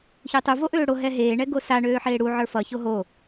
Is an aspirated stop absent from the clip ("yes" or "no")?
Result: yes